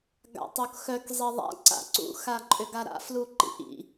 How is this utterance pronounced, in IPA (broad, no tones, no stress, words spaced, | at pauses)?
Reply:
ɡa̰tˤokxœk zˤiðˤa̰ ǀa̰ǀṵ xaǃʼʏɡaɾa̰ fluǃḭʔḭ